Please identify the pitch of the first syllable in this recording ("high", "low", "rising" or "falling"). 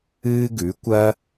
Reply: high